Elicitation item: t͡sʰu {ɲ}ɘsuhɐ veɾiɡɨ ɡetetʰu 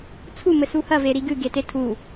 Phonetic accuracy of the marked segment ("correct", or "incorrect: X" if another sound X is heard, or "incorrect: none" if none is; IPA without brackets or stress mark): incorrect: m